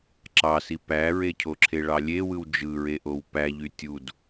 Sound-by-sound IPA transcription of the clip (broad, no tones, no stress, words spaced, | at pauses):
ǁɑsi pæɹecʰoǁʰe ɭɑlʲewɯw d͡ʒɯɹeʔow pæʎy tʲud